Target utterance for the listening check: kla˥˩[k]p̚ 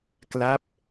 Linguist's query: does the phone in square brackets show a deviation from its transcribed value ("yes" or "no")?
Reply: yes